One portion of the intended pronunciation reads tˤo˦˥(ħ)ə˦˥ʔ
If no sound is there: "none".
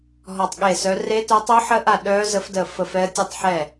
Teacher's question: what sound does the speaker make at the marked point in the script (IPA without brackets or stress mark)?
ħ